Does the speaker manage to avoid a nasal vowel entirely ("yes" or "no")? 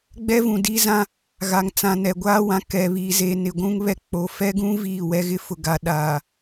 no